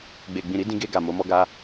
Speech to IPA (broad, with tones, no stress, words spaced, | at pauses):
ɡ͡be˨ɡ͡bĩ˨ɾi˨˦ dĩ˧ɡe˧ ɡa˨ mo˨˦mɔ˦ɡa˦